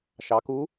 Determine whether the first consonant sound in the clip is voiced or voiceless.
voiceless